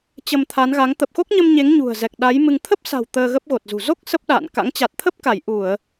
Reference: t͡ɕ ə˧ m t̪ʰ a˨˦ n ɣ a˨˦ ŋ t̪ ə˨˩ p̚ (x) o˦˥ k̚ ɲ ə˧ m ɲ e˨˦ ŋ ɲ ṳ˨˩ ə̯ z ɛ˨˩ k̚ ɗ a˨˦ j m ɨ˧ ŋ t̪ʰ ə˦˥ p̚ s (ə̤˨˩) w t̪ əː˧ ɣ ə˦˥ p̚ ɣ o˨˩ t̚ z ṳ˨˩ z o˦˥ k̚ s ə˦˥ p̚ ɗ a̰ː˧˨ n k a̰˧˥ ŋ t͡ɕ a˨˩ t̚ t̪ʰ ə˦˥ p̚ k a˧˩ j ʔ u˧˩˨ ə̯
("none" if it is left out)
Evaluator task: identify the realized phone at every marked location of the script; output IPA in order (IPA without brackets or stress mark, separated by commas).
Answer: x, a̤˨˩